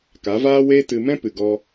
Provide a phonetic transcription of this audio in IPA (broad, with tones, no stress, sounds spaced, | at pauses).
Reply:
k a˨˦ v aː˦ w eː˦ t ɨ˧ m ɛ̃˦ p ɨ˨ ɡ ɔ˧